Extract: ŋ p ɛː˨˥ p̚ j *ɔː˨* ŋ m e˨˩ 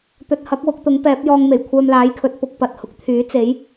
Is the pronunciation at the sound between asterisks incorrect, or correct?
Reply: incorrect